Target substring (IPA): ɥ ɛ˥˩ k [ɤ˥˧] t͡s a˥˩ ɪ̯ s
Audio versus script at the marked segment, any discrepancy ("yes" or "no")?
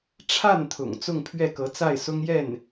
yes